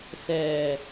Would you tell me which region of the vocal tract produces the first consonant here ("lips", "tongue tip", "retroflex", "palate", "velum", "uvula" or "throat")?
tongue tip